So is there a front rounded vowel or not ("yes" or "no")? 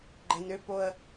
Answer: yes